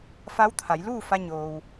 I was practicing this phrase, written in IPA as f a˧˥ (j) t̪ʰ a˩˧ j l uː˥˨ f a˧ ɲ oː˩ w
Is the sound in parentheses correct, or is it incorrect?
incorrect